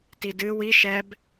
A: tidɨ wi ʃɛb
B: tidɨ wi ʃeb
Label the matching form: A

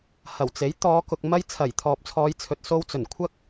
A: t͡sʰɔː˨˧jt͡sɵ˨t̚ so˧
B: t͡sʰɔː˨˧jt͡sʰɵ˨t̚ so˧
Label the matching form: B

